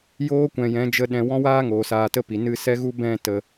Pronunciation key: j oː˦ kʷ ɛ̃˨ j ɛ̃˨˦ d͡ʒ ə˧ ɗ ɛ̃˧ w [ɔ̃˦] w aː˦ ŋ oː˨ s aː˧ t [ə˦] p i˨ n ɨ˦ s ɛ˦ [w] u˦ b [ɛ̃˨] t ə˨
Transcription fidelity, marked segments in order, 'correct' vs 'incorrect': correct, correct, incorrect, incorrect

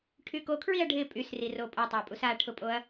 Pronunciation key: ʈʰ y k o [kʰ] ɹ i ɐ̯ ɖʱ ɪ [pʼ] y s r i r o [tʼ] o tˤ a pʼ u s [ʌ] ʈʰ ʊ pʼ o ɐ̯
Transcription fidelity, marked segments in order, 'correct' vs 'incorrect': correct, correct, incorrect, incorrect

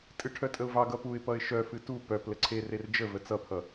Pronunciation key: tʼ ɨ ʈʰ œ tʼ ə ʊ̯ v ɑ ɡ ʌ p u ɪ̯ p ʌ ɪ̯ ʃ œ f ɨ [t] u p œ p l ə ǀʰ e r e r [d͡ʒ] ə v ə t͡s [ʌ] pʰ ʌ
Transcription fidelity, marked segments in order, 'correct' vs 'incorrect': correct, correct, correct

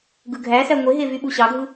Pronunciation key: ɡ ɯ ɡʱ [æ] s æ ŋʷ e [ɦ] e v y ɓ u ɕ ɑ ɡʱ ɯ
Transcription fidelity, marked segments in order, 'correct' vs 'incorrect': correct, correct

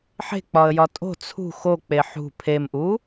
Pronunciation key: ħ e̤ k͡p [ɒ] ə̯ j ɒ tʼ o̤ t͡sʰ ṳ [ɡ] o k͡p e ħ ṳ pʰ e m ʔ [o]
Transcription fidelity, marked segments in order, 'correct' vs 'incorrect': correct, incorrect, incorrect

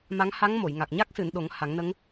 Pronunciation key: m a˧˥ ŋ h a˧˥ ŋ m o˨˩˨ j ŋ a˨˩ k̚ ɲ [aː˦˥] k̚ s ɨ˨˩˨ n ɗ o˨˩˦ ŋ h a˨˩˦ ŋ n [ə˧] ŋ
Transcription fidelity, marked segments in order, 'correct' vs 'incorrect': incorrect, incorrect

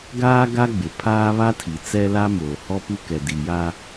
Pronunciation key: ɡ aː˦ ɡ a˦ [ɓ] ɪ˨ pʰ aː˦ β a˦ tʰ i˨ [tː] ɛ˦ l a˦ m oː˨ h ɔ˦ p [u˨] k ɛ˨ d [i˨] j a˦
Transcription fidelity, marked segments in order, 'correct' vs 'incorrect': incorrect, incorrect, incorrect, correct

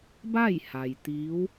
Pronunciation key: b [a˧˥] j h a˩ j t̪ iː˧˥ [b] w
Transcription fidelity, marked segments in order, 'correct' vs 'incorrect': incorrect, incorrect

